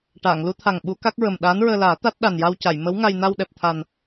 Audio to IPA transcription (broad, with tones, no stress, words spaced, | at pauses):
ʈaː˨˩˨ŋlu˧˥t̪ʰa˨˩ŋ ɓu˧˥ ka˦˥k̚ɹə˨˩m ɗaː˧˥nɹəː˧laː˨˩˦ t̪a˦˥t̚ ɗa˨˩n ja˧wca˨˩˨j mə˧˥wŋa˧j na˧wɗɛ˨˩p̚t̪ʰa˨˩n